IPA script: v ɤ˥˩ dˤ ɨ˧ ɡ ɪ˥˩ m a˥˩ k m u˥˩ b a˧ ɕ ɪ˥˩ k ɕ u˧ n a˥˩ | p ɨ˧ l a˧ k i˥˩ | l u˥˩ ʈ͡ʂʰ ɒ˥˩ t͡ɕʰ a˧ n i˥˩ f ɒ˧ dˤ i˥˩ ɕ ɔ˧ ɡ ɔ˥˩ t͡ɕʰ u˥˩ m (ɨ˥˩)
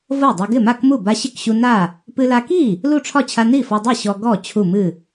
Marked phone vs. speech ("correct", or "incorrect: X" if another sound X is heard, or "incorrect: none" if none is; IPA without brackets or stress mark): correct